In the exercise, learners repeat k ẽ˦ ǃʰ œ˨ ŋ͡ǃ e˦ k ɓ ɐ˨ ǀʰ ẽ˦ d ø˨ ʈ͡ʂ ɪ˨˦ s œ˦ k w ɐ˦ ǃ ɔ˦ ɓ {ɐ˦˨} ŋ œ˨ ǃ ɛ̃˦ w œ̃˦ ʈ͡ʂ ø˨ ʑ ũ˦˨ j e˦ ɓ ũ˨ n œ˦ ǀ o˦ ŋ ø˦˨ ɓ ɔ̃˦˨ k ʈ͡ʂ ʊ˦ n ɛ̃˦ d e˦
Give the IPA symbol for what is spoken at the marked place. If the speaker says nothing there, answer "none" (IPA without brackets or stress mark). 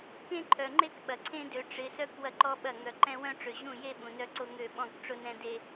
ɐ˦˨